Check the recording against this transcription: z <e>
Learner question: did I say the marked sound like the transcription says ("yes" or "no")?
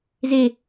yes